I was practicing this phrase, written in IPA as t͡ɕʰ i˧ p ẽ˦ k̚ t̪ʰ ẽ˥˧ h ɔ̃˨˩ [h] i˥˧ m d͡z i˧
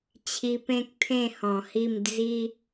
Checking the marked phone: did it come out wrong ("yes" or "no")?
no